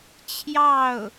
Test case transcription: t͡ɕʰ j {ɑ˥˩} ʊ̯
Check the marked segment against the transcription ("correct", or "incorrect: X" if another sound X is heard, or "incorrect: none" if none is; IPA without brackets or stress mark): correct